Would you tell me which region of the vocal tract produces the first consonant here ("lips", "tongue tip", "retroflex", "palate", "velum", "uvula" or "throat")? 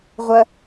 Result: uvula